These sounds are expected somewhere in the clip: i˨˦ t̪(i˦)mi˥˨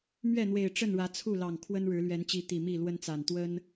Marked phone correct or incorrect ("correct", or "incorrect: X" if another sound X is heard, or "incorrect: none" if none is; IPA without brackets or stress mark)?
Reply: incorrect: i˨˩